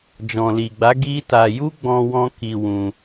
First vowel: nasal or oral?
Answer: nasal